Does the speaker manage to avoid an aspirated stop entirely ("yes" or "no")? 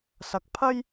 no